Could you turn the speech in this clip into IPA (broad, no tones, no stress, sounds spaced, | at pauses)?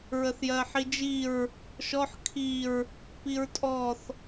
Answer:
ɹ ə θ j ɜ ħ i d͡ʒ i ɹ | ʃ ɔ ħ kʰ i ɹ | p i ɹ tʼ ɔ θ